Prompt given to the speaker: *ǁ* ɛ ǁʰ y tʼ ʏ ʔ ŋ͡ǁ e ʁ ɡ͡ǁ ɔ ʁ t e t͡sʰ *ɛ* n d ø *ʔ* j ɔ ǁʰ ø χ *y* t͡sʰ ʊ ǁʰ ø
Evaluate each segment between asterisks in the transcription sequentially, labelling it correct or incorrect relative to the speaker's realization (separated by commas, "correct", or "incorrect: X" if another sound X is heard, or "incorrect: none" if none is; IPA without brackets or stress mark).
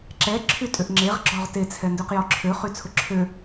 correct, correct, incorrect: q, correct